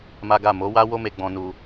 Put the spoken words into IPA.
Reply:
m a˦ ɡ a˦˨ m o˨˦ w a˦ w o˦ m e˧ ɡ͡b ɔ̃˧ n u˧

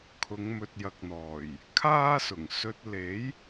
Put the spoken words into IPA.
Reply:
kʰ ʊ˨˧ ŋ m ɵ˨ t̚ j ɐ˨ k̚ n̪ ɔː˨˩ j | kʰ aː˥ s ʊ˨˩ ŋ s ɵ˧ t̚ l e˨˥ j

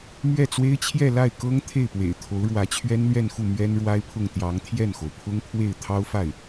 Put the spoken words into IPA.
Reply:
m ɥ ɛ˥˩ t͡s w e˥ ɪ̯ t͡ɕʰ j ɛ˥˧ l a˥˩ ɪ̯ k ɤ˥ ŋ t̪ʰ e˥˩ ɪ̯ p w ḛ˨˩ ɪ̯ t̪ʰ o˧˥ ʊ̯ ɻ w ä˧˥ t͡ɕʰ ɥ ɛ˥ n l ɥ ɛ˥˧ n x u˥˩ m ɥ ɛ˥ n ɻ w a˥ ɪ̯ pʰ ʊ˥˩ ŋ t̪ j ɑ˧˥ ŋ t̪ʰ j ɛ˥˩ n x o˩ ʊ̯ pʰ ʊ˥ ŋ pʰ w e˥˩ ɪ̯ t̪ʰ ɑ˥ ʊ̯ f a˥˩ ɪ̯

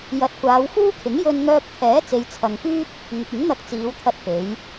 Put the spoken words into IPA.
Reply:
j ɐ˨˥ t̚ kʷ aː˨˧ w f uː˥ kʰ ɪ˨˥ ŋ j ɵ˧ n ŋ œː˧ p̚ t̪ʰ ɛː˨˥ t͡s e˨ j t͡sʰ ɐ˨ ŋ k yː˥ t̚ | ŋ ʊ˨ k̚ ɪ˨˥ ŋ n̪ ɐ˧ k̚ t͡s iː˨˧ w t̪ʰ ɐ˧ t̚ f e˨˧ j

